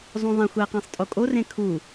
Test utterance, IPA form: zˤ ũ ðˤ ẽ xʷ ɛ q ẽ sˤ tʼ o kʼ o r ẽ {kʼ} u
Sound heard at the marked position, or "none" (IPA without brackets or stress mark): kʰ